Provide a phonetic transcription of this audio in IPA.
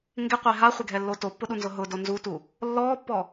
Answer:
ŋ ɡ ɪ qʷ e ɦ a χʷ ɪ ɡʱ ɛ lː o t o pː ʊ ɗ u n z ʊ ɦ ʊ d o n z u t u | lː ɔː pː ɔ

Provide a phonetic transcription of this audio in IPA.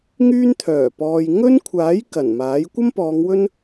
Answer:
ŋ yː˥ n t̪ʰ œː˨˩ p ɔː˨ j ŋ ɵ˥ n kʷʰ aː˨˥ j k ɐ˨˩ n m aː˨˥ j kʷ ɐ˥ m p ɔː˨˧ ŋ w ɵ˥ n

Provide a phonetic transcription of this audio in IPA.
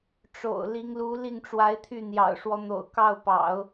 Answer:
ʈ͡ʂ o̰˨˩ ʊ̯ l i˧˥ ŋ l u˧˥ l i˥˩ ŋ ʈ͡ʂ w a˧˥ ɪ̯ t̪ʰ y˥˩ n̪ j ɑ̰˨˩ ʊ̯ ʂ w ɔ˦ n̪ o̰˨˩ ʊ̯ k ɑ˥˩ ʊ̯ p ɑ̰˨˩˦ ʊ̯

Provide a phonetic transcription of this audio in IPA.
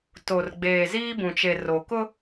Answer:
t o˨ r ɡ͡b eː˨ z iː˦ b ũ˨ t͡ʃ e˨ r o˨ k ʊ˦

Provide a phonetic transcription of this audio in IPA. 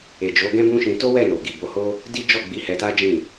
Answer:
e˨ d͡ʒ o˨˦ ɡ ɛ̃˦ b ũ˦ ʃ ĩ˧ t o˦ w ɛ˦˨ n o˨ ɡ i˨ b o˨˦ h o˦ | d i˦ d͡ʒ ɔ˦˨ ɡ͡b i˨˦ h ɛ˧ t a˦ d͡ʒ ĩ˦˨

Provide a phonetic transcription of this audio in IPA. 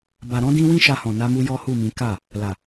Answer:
b a˨ ɾ ɔ̃˧ d ĩ˧ w ĩ˦ ʃ a˧ h ɔ̃˨ n a˧ m u˧ j ɔ˦ h u˦˨ m ĩ˨˦ k a˦˨ | l a˨

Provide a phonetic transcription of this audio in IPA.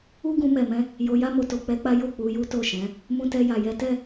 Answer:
u˦ ɡ ũ˧ m ɛ˨ m ɛ̃˧ | j o˧ j a˦ m o˧ t o˨ k͡p ɛ˧ k͡p a˦ j o˦˨ k͡p u˨˦ j u˦ t o˦˨ ʃ ɛ̃˨˦ | m ũ˧ t ɛ˧ j a˨ j ɛ˨˦ t ɛ˦˨

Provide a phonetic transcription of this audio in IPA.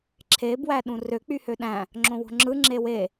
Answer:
ǁʰ e b w æ ɗ ũ r ø k͡p y h ø ɗ æ̃ | ŋ͡ǁ õ w o̤ ŋ͡ǁ ɯ ŋ͡ǁ e w e

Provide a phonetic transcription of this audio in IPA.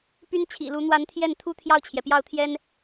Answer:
p y˥ n t͡ɕʰ ḭ˨˩ l u˧˥ n̪ w a˧˥ n t̪ʰ j ɛ˥˩ n t̪ʰ u˥ t̪ʰ j ɑ˥˩ ʊ̯ t͡ɕʰ j ɛ˩ p j ɑ˥˩ ʊ̯ t̪ʰ j ɛ˥ n

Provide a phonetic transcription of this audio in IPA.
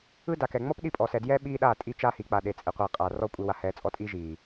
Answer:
ɯ˦ d a˨ k ɛ˨ ŋ͡m ɔ˦ p ɗ i˦˨ pʼ ɔ˨ s ɛ˨ d j ɛ˦ ɓ iː˦ ɗ aː˦˨ tʼ i˦ t͡ʃ aː˦ h iː˨ k͡p a˨ ɗ e˨ t͡sʼ e˨ qʷ iː˨ qʼ aː˨ r ɔ˦˨ kʷʼ i˨ w a˨ h ɛː˨˦ t͡sʼ ɔ˦ tʼ iː˦ ʒ iː˨

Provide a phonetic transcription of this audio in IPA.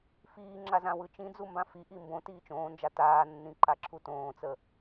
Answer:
f iː ŋ͡ǁ a z ã w ɯ t͡ʃ ĩ d͡z u m b ã f i ʔ i m b õ t iː t͡ʃ õː n d͡ʒ a t aː nː ĩ ǃ a ǁʰ u t õː t͡s ə

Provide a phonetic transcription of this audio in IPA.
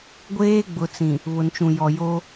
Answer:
ɡʷ eː˦ ɡ͡b ʊ˨ t͡s ĩ˨ | β ʊ˨ n t͡ʃ ũ˨ j ɔ˨ j o˦

